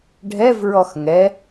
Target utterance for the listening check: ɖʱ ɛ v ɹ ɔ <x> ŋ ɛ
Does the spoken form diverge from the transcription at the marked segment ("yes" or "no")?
no